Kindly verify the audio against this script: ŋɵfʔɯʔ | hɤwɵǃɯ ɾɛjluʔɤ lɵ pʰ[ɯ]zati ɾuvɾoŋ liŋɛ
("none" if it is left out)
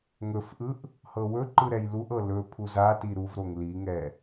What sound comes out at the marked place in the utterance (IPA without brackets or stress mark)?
u